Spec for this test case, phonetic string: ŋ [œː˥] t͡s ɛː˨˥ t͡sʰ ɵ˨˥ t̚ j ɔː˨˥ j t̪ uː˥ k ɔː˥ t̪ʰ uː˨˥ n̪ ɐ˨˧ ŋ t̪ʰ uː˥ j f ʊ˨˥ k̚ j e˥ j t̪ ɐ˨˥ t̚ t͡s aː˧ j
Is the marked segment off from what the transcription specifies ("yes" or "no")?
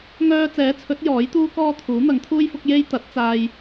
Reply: yes